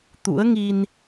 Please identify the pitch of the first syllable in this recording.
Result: rising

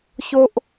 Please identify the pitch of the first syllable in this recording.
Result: high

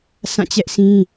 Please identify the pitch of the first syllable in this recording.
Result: falling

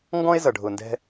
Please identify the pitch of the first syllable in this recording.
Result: high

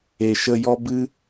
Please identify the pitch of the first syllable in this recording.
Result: low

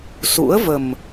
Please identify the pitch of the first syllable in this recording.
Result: rising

